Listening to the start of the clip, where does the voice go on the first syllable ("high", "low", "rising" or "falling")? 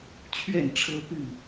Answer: falling